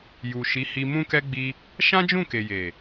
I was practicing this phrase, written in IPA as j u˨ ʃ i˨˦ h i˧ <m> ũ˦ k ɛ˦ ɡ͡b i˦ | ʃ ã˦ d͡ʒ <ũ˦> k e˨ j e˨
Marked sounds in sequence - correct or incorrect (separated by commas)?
correct, incorrect